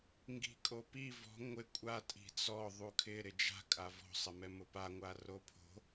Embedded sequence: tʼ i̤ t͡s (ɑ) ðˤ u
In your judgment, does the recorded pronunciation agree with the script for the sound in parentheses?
no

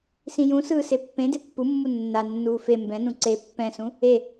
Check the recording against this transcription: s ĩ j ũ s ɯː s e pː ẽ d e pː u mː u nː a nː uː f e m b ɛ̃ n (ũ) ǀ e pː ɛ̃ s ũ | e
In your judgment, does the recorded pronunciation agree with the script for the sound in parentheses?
yes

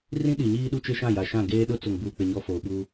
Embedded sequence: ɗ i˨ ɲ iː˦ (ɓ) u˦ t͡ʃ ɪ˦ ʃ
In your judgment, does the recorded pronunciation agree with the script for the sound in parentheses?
no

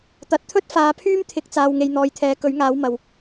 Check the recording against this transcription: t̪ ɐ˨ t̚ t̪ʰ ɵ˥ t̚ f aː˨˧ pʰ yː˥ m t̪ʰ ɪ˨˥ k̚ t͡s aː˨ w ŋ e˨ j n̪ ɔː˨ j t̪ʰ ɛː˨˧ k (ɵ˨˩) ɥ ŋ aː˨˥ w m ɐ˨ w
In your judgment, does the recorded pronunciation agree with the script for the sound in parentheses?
no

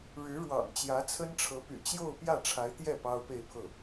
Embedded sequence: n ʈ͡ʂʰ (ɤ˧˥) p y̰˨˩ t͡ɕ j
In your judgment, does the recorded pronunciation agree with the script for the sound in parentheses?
yes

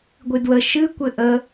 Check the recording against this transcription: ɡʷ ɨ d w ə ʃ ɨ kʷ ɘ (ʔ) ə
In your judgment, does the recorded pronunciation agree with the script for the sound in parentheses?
yes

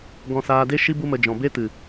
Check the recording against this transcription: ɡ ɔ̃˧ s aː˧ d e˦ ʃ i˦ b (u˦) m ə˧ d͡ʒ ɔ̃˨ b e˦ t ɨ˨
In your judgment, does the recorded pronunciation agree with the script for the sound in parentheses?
yes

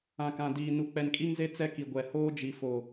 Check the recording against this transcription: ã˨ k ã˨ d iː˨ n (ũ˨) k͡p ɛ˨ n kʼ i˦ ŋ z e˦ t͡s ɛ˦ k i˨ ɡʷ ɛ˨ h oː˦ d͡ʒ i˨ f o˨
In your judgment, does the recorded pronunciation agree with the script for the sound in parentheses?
no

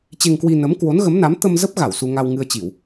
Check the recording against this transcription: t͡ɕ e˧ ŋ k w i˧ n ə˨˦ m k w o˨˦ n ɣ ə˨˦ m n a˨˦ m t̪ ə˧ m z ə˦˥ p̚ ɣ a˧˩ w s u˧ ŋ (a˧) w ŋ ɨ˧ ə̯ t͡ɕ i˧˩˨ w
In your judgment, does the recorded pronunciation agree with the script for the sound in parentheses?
yes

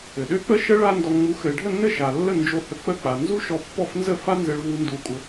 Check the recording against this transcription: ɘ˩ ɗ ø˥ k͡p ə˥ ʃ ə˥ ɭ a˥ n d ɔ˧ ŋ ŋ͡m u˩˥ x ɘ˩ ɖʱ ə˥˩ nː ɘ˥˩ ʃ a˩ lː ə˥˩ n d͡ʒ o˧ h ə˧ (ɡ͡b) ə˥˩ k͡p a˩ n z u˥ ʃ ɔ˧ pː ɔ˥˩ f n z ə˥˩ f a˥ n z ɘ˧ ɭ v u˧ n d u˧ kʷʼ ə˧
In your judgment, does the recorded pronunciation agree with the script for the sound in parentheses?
no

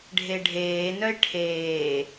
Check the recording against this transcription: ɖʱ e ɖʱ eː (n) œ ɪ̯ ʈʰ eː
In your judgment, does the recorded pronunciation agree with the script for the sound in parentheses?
yes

